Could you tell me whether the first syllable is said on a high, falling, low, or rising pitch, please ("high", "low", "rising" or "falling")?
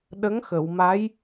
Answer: rising